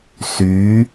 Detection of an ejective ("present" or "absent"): absent